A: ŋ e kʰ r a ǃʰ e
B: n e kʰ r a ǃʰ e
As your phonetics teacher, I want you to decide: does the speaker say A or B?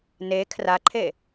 B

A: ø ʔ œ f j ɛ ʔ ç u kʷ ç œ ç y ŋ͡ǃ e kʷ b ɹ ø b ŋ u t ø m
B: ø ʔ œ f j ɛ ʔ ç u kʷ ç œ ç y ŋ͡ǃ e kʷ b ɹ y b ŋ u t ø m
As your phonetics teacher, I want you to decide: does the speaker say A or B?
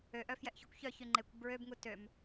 A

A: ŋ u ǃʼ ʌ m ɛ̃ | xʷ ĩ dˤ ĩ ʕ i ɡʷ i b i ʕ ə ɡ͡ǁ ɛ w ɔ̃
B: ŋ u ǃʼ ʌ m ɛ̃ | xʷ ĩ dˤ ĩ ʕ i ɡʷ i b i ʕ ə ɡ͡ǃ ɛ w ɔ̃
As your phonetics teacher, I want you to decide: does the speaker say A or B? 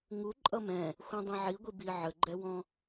B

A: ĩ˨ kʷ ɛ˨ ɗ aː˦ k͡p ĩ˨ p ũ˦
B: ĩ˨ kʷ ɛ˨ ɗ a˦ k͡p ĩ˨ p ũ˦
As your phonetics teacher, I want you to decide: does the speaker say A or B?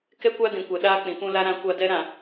A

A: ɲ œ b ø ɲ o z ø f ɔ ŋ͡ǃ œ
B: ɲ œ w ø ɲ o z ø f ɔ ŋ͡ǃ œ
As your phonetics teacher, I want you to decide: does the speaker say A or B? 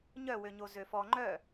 B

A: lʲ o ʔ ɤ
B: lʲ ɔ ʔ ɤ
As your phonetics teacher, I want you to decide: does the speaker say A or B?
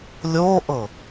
A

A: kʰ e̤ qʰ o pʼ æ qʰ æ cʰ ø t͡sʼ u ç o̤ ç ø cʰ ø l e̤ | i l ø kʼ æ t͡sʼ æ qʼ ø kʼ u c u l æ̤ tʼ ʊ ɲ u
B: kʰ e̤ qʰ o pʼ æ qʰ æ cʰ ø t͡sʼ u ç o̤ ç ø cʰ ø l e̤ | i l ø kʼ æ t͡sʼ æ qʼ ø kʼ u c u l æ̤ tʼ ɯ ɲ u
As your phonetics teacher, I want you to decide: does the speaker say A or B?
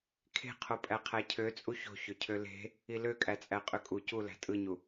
B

